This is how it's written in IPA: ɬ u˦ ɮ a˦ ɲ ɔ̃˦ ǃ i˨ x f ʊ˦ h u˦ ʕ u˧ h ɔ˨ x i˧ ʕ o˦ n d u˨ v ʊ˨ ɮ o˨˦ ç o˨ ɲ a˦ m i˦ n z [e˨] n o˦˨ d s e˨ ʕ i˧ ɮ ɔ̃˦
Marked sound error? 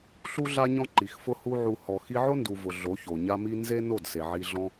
yes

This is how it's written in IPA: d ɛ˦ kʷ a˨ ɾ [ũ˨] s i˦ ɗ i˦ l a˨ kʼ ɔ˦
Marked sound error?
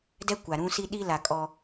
yes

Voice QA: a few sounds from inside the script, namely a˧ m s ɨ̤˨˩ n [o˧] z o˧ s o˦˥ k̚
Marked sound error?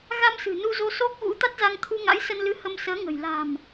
yes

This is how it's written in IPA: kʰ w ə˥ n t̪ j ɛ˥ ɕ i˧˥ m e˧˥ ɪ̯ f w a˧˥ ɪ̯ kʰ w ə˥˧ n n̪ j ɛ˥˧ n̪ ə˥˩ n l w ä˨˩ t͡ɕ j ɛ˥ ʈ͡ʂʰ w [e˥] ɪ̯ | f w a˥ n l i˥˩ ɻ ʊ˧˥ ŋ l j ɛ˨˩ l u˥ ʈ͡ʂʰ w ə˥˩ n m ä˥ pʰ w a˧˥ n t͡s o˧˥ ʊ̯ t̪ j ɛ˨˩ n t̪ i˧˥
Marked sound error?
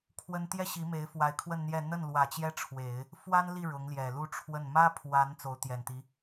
yes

